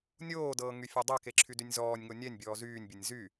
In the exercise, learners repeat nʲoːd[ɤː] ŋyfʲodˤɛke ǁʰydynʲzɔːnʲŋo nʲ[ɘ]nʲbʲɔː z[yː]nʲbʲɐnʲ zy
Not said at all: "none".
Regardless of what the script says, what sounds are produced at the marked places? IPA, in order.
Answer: ɤː, ɛ, yː

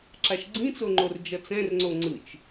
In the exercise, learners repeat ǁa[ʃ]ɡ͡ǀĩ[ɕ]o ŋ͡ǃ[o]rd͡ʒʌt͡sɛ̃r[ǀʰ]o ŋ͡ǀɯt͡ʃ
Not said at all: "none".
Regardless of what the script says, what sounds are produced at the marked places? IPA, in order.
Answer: ʃ, t͡s, o, ŋ͡ǀ

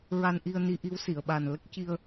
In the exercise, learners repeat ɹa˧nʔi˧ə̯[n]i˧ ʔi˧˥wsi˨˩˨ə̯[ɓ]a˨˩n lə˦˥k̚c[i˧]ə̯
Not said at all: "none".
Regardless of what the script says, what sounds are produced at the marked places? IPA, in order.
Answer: n, ɓ, i˧

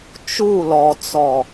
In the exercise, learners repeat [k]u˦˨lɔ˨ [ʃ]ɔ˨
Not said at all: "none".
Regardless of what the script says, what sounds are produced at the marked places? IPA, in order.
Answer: t͡ʃ, t͡s

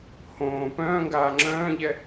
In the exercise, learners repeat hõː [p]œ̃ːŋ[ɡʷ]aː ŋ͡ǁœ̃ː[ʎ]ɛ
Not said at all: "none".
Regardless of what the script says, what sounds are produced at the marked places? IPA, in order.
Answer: p, ɡ, ʎ

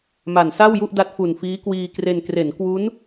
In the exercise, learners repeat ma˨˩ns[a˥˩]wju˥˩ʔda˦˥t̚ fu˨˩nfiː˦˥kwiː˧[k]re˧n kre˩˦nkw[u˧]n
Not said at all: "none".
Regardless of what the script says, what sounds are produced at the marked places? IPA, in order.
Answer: a˥˩, k, u˦˥

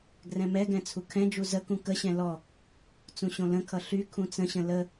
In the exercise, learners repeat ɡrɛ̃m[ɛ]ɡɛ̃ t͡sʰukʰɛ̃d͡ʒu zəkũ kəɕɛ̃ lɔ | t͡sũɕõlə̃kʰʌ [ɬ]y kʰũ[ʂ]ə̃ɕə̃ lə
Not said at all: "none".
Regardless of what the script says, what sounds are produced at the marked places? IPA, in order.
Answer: ɛ, ɬ, t͡s

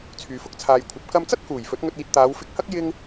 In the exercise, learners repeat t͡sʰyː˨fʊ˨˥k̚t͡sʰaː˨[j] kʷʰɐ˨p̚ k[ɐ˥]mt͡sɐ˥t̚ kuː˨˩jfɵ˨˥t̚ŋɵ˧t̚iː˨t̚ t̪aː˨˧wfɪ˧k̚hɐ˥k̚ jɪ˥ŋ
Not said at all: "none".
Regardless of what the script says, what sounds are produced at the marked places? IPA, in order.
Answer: j, ɐ˧

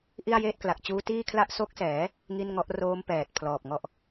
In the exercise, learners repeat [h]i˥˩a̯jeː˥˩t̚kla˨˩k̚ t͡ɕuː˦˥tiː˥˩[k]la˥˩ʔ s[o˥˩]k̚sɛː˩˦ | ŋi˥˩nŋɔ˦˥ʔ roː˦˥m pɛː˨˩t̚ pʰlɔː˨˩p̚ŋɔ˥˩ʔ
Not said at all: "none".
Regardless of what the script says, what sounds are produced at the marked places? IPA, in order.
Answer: ʔ, kʰ, o˦˥

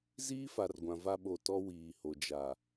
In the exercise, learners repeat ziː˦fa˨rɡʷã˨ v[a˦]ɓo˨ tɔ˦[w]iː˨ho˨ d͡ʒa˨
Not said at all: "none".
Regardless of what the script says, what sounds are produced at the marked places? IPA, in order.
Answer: a˦, w

